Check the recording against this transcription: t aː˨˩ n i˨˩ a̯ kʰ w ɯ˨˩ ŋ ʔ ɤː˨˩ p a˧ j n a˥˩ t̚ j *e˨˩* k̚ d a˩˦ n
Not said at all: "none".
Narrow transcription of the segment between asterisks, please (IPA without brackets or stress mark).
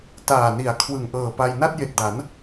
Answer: e˨˩